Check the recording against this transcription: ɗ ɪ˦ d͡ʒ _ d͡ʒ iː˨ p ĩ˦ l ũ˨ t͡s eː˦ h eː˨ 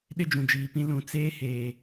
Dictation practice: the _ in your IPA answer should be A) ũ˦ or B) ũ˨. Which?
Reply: B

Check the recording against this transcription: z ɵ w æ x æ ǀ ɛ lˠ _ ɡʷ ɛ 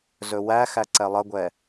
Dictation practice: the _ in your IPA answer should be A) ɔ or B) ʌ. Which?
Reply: B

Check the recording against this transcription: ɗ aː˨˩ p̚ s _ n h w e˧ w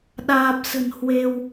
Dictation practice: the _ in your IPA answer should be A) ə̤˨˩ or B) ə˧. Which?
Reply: A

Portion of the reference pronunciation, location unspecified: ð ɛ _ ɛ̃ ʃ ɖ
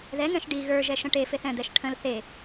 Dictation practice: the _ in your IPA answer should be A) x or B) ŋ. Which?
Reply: B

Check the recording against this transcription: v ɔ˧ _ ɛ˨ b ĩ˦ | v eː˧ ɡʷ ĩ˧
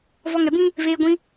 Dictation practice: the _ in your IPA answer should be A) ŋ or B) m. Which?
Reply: A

